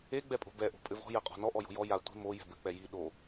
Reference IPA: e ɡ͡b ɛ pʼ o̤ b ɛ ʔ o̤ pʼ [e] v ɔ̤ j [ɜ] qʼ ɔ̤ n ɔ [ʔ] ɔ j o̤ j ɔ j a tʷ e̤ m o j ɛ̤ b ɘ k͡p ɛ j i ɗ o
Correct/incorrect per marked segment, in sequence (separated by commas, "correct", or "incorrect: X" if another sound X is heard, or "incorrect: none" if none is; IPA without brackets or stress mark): incorrect: ɘ, correct, correct